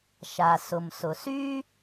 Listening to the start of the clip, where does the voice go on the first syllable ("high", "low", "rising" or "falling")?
low